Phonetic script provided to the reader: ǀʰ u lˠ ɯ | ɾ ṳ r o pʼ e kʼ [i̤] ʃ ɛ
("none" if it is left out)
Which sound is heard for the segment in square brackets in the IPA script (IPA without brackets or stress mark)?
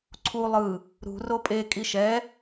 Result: i